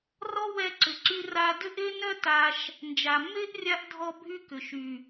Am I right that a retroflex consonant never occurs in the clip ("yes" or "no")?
yes